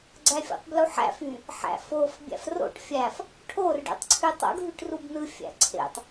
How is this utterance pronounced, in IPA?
ɡ͡ǀ æ fʲ o̰ tˤ b l u ħ æ̰ f y | ħ æ̰ f o f bʲ æ̰ f r o̰ ʈ fʲ æ f | ʈʰ o r ɖ ḛ tˤ ǀʰ y tˤ o̰ ɡ ɦ y ʈ r u b n ɯ fʲ æ̰ ǀʰ ḛ tˤ

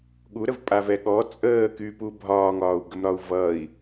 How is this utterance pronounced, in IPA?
ɠ u ɾ ə v pʼ a v ɛ ɠ ɔ t͡sʼ əː k y p u bʱ ɒː ŋ ɒː u̯ ɡ ə m ɾ ɒ u̯ v ʌ i̯

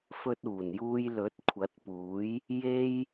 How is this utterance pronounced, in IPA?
f ɵ˧ t̚ uː˨˩ n j uː˧ j l ɵ˨˥ t̚ kʷʰ ɐ˨˥ t̚ p uː˨˥ j | j e˧ j

